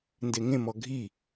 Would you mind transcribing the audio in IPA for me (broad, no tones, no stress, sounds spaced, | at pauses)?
n d e ŋ ẽ m ɔ ɡʱ i